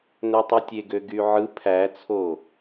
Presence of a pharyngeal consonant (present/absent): present